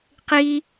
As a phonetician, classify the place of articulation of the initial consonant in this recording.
uvular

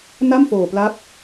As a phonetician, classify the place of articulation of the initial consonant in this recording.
alveolar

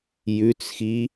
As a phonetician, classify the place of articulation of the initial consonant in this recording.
palatal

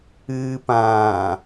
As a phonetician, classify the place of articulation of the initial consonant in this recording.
labial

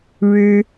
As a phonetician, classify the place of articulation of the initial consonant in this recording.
retroflex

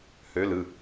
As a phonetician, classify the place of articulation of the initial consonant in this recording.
glottal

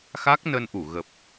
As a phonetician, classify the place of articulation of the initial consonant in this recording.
velar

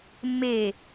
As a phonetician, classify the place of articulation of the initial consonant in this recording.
labial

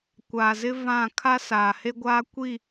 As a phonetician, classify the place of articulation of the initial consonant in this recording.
velar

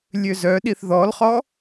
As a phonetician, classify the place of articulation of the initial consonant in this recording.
alveolar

